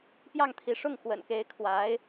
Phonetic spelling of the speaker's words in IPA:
p j ɑ˥˩ ŋ t̪ʰ i˧˥ ʂ ʊ˥˩ ŋ x w ə̰˨˩ n k e˧˥ ɪ̯ kʰ w a˧˥ ɪ̯

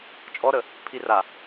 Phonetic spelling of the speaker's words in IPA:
t͡ʃʼ ɔ ɾ ə | pʰ i r a

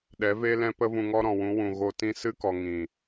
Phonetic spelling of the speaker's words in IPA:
ɗ ɛ˨˦ v e˦ l ɛ̃˦ p ə˦ v ũ˧ ŋ ɔ˦ ɾ ɔ̃˨ w ũ˨˦ w ũ˨ ɣ o˧ t ĩ˦ s ɨ˦ k ɔ˨ ŋ ĩ˨

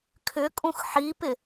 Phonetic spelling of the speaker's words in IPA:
kʰ ʏ kʼ ũ x ħ i p ɪ

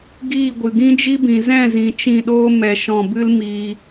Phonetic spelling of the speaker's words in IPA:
ɡ iː˦˨ ɡʷ ɨ˨ ɡ ĩ˦ d͡ʒ i˦ b ĩ˨ z ɛ̃˦˨ z ĩ˨ t͡ʃ ĩ˦˨ ɗ oː˦ m ɛ˧ ʃ ɔ̃˦˨ b ɨ˦ l m iː˧

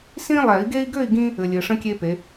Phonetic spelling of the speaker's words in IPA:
s ĩ˦ lˠ ɛ˨˩˦ i̯ ɡ e˦ i̯ ɡ ø˥˨ i̯ ɡ ĩ˦ | ɘ˨ lʲ ɘ˨ ʂ ə̃˦ kʲ e˦ p e˨˦

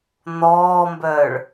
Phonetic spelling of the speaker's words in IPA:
n̪ ɔː m b œː ɭ

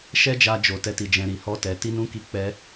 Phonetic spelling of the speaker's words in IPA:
ʃ ɛ˦ d͡ʒ a˧ d͡ʒ o˨ t ɛ˧ t i˨ d͡ʒ ɛ̃˨ ɾ i˨ h ɔ˧ t ɛ˨ t i˨˦ n ũ˧ k i˧ k͡p ɛ˧

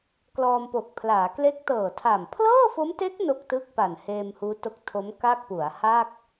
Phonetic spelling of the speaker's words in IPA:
k l ɔː˧ m p o˨˩ k̚ pʰ l aː˩˦ k l e˦˥ k̚ t ɤː˨˩ tʰ a˨˩ m pʰ l ɤː˥˩ f o˦˥ m t e˦˥ k̚ n o˥˩ k̚ t ɯ˥˩ k̚ p a˨˩ n h eː˧ m h uː˦˥ t o˦˥ k̚ tʰ o˦˥ m k a˥˩ k̚ p u˩˦ a̯ h aː˥˩ k̚

